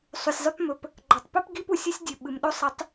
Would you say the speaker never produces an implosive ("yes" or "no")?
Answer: no